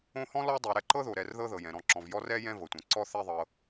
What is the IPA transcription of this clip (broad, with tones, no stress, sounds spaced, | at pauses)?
õ˦ h ɔ̃˥ l ɔ˥ dˤ o˨ ɾ ɛ˦ ǃ ɤ˥ ð o˩ ɾ ɛ˨ r ð ɤ˦ ð ɤ˩ j ɛ̃˩ ɾ ɔ̃˨ ǁ ɔ̃˩ v j ɔ˦ r ɛ˥ j ɛ̃˦ v ɤ˩ tʷ ɛ̃˩ ǀ ɔ˥ θ ɛ˦ ðˤ ɤ˨